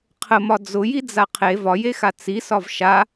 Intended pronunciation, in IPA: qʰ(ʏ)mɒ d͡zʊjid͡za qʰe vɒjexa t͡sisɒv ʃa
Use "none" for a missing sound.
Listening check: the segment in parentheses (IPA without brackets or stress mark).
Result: ə